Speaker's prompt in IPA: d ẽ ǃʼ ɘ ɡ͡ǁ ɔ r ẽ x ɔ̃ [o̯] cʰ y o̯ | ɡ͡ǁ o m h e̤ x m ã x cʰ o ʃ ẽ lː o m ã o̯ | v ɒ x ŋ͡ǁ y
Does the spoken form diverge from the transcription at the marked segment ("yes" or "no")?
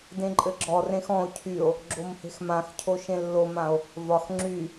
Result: no